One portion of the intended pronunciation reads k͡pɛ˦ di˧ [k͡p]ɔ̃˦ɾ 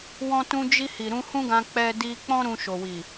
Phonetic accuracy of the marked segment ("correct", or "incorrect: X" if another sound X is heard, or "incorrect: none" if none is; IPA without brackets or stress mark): correct